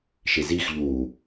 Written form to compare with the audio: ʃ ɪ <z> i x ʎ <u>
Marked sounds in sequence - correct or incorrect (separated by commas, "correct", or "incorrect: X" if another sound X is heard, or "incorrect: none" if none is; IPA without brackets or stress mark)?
correct, incorrect: uː